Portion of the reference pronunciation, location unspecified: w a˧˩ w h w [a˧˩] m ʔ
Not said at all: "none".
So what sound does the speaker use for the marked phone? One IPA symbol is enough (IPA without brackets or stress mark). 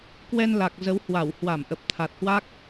a˧˩